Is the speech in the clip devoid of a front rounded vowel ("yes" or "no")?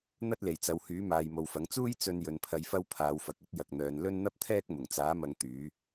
no